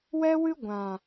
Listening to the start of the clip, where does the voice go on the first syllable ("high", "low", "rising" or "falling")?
high